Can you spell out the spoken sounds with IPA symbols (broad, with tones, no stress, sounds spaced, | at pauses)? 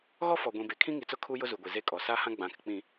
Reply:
ɣ ɔ˦ f ɔ˨ ɡʷ ĩ˨ b e˨ kʰ ĩ˦ ŋ i˨ t͡s ʊ˦ kʰ u˦ j ʊ˦ z u˨ ɡʷ i˨ z e˦ kʼ ɔ˨ s a˦ h ã˦ ɡ͡b ã˨ k ɪ˨ k͡p ĩ˨